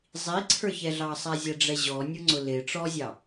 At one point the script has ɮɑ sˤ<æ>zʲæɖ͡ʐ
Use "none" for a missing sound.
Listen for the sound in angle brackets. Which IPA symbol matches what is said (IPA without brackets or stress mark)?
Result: æ